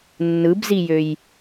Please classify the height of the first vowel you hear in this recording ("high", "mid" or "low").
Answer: high